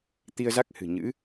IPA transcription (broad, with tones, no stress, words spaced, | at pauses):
t̪i˧ə̯za˦˥k̚hɨ̤˨˩ ɲɨ̰˧˥